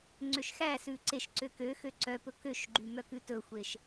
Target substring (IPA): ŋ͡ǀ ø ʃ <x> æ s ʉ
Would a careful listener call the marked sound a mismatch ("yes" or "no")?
no